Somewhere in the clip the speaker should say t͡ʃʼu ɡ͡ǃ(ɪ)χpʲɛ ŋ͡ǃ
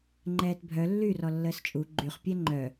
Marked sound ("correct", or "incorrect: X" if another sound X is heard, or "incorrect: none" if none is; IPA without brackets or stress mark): incorrect: y